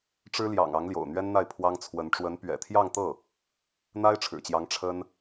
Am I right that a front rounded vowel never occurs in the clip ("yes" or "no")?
yes